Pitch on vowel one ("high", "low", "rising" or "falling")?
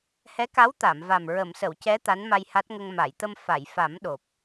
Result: rising